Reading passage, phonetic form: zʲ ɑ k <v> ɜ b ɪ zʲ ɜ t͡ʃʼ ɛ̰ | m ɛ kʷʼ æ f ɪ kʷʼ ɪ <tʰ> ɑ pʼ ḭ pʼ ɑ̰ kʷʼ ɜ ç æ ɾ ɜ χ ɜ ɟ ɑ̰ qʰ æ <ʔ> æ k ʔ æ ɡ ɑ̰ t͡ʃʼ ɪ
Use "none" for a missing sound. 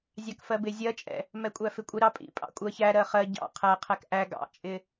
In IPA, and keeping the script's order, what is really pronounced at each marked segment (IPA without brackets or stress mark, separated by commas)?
f, ɾ, qʰ